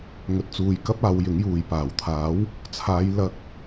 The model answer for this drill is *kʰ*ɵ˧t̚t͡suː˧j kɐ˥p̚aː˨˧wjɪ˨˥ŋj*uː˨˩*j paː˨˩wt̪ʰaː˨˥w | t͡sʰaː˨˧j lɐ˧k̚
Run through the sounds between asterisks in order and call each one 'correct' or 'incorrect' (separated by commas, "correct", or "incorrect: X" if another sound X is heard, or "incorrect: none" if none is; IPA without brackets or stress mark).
incorrect: ŋ, incorrect: uː˨